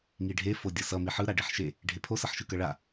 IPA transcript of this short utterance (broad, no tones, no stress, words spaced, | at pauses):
ŋiɖʱe fodʲʌsʌ miħɯ ɾaɖeħʃe | ɖʱepʰo sʌħʃɯkʌɭa